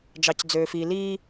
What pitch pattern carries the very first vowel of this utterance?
low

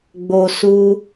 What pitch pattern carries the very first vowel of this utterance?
low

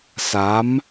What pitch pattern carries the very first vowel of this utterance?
rising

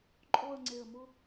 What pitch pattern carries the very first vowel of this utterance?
falling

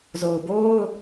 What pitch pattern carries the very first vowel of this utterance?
low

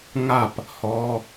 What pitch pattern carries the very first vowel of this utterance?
falling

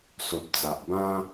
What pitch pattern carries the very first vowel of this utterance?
low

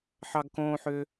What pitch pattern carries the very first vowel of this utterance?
high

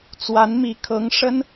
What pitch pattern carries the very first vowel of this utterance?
rising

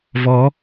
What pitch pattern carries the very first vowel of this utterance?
rising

